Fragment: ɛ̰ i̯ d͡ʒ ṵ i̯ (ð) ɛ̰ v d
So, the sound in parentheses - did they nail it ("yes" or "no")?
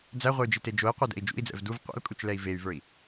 no